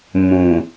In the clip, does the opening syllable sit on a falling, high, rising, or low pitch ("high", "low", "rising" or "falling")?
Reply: low